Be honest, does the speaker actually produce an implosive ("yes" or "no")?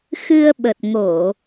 yes